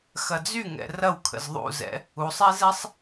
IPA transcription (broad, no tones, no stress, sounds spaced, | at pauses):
x ɐ d͡z y ŋ ɛ̰ r ɐ w kʰ ə̰ z ðˤ ṵ z ɛ̰ | u sˤ ɛ z ɛ sˤ